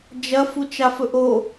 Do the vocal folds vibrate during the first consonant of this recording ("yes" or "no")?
yes